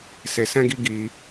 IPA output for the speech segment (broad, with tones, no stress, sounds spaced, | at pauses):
s e˧ s ɛ̃˦ ɡ i˦ ɡ i˧